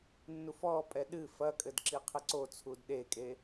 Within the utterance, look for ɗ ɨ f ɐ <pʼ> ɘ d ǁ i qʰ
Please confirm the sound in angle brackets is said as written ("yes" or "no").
no